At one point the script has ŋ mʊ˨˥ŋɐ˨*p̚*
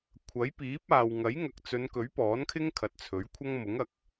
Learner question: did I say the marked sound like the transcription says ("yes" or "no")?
no